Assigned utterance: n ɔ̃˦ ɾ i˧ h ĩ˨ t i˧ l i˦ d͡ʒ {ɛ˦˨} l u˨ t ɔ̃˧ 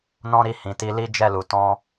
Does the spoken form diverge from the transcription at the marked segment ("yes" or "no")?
no